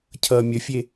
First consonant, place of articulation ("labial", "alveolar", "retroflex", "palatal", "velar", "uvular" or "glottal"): palatal